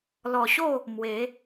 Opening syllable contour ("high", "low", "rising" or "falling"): low